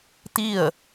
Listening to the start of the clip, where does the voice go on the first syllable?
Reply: falling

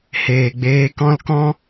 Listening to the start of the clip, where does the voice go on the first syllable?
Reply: low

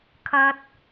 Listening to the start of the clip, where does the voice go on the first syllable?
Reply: high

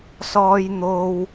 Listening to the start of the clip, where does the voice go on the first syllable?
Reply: low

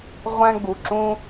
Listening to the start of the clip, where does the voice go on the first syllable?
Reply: high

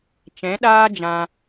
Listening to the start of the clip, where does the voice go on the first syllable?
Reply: rising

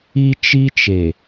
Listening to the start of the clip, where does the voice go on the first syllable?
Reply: high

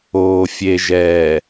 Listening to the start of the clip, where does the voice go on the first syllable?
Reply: low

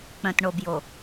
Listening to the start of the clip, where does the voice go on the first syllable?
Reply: low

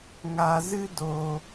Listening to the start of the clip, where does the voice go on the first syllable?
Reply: low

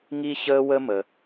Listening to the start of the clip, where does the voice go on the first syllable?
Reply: high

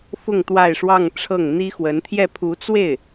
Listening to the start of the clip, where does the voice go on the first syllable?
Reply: falling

